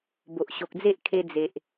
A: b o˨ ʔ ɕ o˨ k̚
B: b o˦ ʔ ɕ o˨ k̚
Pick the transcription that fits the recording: A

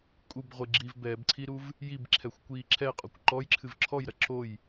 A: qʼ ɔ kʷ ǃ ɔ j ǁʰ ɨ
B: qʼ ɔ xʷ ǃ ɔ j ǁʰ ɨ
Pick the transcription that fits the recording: A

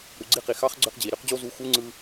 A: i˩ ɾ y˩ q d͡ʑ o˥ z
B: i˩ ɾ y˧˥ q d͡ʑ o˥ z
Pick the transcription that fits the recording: B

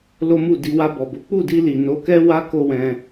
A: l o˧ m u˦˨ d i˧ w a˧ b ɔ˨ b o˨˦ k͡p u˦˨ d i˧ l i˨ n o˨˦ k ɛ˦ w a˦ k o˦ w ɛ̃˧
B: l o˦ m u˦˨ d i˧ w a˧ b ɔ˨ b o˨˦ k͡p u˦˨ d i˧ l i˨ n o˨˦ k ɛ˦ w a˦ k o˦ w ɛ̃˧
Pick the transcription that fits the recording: B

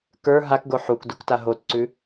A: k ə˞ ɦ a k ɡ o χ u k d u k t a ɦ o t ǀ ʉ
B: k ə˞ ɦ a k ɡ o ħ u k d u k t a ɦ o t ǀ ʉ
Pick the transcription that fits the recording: B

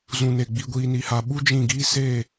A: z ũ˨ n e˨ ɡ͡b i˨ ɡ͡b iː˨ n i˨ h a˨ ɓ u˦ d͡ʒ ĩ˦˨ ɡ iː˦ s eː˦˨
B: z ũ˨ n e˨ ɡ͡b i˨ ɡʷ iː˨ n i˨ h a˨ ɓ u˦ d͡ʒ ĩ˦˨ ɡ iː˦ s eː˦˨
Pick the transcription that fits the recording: B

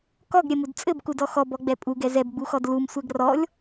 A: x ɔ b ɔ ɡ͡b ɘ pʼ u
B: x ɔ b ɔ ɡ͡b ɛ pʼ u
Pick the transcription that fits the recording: B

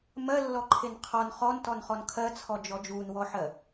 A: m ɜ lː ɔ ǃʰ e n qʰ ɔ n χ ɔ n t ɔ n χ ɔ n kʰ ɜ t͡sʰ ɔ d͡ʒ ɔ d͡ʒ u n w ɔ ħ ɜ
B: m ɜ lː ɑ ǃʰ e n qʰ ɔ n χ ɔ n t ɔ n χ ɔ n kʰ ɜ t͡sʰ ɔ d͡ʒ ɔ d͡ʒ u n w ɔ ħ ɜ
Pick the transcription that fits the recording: A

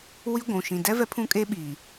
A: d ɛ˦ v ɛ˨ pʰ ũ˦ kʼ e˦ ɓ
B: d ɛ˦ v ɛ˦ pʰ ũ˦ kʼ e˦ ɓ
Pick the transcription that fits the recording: B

